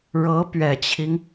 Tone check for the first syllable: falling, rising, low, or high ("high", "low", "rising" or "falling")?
rising